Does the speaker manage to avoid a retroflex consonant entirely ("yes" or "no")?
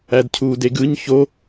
yes